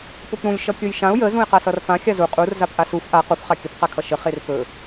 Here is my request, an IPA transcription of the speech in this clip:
p ʊ p ɾ ũ lʲ ʃ ʌ kʲ ɵ j ʃ ã ʊ̯ j ə z ũ ɪ̯ q a s ʌ r f ã xʲ a z u qʼ u r z a p ʔ a s u f ʔ a q u f χ a kʲ ə p q a kʰ ʌ ʃ ə χ e r p ɵ

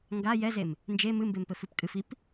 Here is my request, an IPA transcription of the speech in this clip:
ŋ ɡ a j ɛ z e m | n d͡ʒ e m ɨ m b e m p ɘ f ɨ p kʼ ɨ f i p

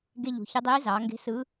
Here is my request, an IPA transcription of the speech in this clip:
ɡ e˧ ʎ ṳ˩˧ ç ɯ˧˥ dˤ iː˧˥ z ɑː˩˧ ŋ ɡ e̤˧˥ s ɯ˧˥

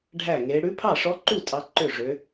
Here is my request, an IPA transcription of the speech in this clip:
ɖʱ æ˥˩ ŋ e˧˥ ɽ ʉ˧˥ pʰ ɑ˥˩ ʂ ɔ˧˥ ǃ u˥˩ tʼ ɑ˧˥ ǃ ø˥˩ ʐ ø˧˥

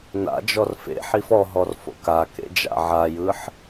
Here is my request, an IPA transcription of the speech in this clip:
n a̰ d͡ʒ ɔ r f ḛ ħ i f ɔ ɦ ɔ r f o̰ k a k ḛ d͡ʒ a̰ ʕ a j ɯ ħ

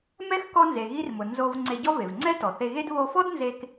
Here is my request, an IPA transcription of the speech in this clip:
m ɛ˥ x k ɔ˥ n z e˩ ɣ i˥ r m ʊ˩ n z o˧ v ŋ͡ǀ e˧ ɟ ɔ˥ v e˩ v ŋ͡ǀ ɛ˥ t ɔ˩ θ e˧ ɣ e˥ d β o˧ f ɔ˥ d n z e˧ k

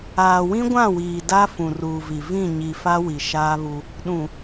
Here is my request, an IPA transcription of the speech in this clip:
aː˨ w ĩ˦ ɡʷ ã˦˨ w iː˨ d a˦ f ũ˨ r uː˨ v i˨ v ĩ˦˨ ɲ i˨ f a˦ w i˨ ʃ aː˦ β u˦ | ɗ ũ˨

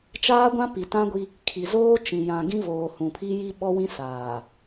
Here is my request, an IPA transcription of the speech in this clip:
t͡ʃ aː˦ ɡʷ ã˦ p i˨ t ã˦ ɡʷ i˦ | kʰ i˨ z oː˦ t͡ʃ ĩ˨ j ã˨ ɡ ĩ˦ v oː˨ h ũ˨ pʰ i˦ j i˦ ɓ ɔ˦ w ĩ˦ s aː˨

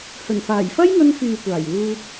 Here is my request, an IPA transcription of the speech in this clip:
h ɵ˨˩ n f aː˨˩ j f ɐ˥ j ŋ ɵ˧ n f yː˨ kʷ aː˨˩ j w uː˧ t̚

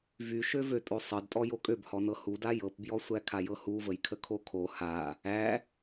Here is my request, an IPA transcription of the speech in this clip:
v y ʃ ø v ø tʼ o sˤ ɤ d tʼ ɔ j o kʼ ø b h ɔ n ɤ h u d a j ɤ p b j ɔ sʷ æ kʰ a j ɤ h u v ə j kʰ ə kʰ o kʰ o h a | æ

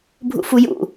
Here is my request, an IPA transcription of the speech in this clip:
bʱ ṵ f u j ṵ

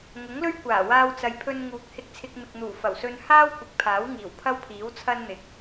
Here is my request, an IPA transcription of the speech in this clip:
ŋ ʊ˨˥ ŋ l ɵ˥ ɥ kʷ aː˨˩ w aː˧ w t͡s ɐ˨ j pʰ ɵ˧ n ŋ uː˨˥ k̚ h ɪ˧ k̚ t͡sʰ ɪ˧ k̚ m ɪ˨ k̚ n̪ uː˨˩ f ɐ˨˩ w s ɵ˧ n h aː˥ w kʷ ɪ˨˥ k̚ pʰ aː˨˥ w ŋ iː˨˩ w pʰ ɐ˥ w pʰ iː˨˥ w t͡sʰ ɐ˥ n n̪ ɪ˨˥ k̚

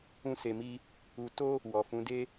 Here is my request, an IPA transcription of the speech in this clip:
ũ˦ s e˧ m i˦ | u˧ t o˦ | w ɔ˨ f ũ˨˦ d e˦

